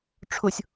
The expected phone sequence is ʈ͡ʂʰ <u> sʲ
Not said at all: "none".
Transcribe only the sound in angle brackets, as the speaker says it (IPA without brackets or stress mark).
ʊ